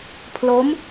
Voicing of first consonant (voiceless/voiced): voiceless